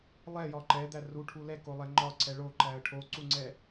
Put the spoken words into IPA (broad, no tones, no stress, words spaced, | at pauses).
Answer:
lˠɛjɒ ǃɛd̪æ ruʈʰu lɛkolˠɛ ŋ͡ǃɒǀʰɛ ɭoǃæə̯ ʈʰoǀuŋ͡ǀɛ